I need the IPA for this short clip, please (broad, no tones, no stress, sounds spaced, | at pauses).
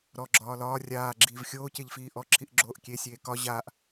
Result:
ɾ ɔ ɡ͡ǁ ɒː l ɒː rʲ aː ɡ͡ǁ iː v xʲ oː c e ʎ f iː ʔ ɔ ǁʰ i ʔ ɡ͡ǁ oː ʔ kʲ e sʲ eː k ɒ ʑ aː ʔ